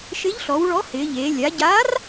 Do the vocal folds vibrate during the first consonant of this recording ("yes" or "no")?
no